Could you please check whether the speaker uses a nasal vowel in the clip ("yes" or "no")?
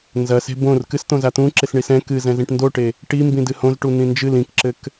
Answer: yes